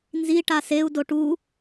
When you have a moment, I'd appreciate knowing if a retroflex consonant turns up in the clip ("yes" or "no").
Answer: yes